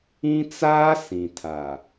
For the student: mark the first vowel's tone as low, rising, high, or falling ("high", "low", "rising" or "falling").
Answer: high